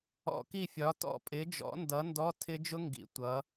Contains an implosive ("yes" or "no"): no